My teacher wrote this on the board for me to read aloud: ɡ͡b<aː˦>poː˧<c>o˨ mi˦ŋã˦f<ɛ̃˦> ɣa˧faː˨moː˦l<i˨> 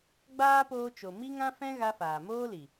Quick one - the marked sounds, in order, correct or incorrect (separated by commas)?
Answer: correct, incorrect, correct, correct